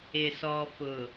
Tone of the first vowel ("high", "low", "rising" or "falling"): low